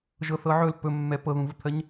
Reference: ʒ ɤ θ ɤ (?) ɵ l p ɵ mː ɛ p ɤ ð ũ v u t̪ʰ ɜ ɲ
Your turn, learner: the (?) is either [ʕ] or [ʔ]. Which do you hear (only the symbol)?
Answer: ʕ